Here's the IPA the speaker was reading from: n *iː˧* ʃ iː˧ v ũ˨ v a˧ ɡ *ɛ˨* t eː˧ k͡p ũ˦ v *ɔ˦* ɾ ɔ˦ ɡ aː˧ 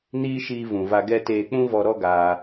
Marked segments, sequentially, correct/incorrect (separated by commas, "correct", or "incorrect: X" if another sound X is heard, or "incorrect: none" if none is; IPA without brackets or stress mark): incorrect: iː˦, incorrect: ɛ˦, incorrect: ɔ˧